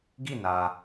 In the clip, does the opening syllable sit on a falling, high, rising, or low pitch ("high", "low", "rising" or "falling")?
falling